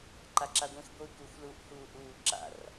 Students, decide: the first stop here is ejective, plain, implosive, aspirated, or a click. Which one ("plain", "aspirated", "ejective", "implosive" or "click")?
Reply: click